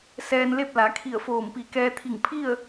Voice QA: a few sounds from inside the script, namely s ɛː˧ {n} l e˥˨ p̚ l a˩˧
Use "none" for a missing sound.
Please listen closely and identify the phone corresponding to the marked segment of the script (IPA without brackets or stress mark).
n